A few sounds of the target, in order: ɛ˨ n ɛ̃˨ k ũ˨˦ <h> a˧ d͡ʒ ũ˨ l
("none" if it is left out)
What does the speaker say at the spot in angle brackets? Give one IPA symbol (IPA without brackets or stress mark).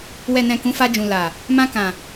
f